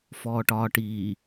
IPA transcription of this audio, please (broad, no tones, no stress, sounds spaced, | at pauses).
f ɔː ʈ ɒː ʈ iː